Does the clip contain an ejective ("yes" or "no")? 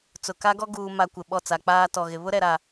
no